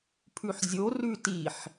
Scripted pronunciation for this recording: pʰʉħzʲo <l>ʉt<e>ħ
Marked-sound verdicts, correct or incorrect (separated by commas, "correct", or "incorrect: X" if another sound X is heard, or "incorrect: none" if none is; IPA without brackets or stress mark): incorrect: r, incorrect: i